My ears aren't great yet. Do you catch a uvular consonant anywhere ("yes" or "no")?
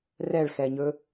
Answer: no